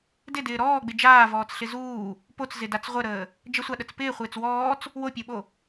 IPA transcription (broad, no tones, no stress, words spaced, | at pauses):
dɪdɪː ɾɔːɡ͡bɪ d͡ʒaːvɔːt͡sɬɪ zuː | pot͡szɪdat͡s ʁʷəɾəː | d͡ʒəsʷaɗət͡s pɪːχʷɪːt͡s wɔːt͡s | wopʲoɓo